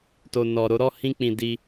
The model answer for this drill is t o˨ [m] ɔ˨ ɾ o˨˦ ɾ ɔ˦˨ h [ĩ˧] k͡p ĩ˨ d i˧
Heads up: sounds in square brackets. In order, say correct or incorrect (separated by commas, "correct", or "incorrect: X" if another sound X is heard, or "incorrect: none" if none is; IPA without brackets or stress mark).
incorrect: n, correct